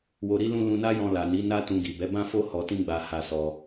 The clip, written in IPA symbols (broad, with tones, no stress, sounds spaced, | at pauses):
w o˧ ɾ i˦ l ũ˦ l ũ˧ n a˦ j ɔ̃˧ l a˨ n i˨˦ n a˦ t ũ˧ ɡ i˨ b ɛ˨˦ b ã˦ f o˦ h ɔ˧ t ĩ˦ ɡ͡b a˧ h a˧ s ɔ˧